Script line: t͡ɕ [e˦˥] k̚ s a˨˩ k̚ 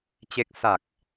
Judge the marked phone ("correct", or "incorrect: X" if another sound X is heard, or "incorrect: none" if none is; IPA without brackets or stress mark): correct